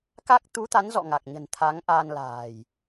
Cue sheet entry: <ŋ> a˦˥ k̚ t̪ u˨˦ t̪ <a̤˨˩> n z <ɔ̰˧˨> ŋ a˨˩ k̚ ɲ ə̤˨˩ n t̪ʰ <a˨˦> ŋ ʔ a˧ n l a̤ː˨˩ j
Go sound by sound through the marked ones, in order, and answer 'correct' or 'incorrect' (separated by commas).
incorrect, incorrect, correct, correct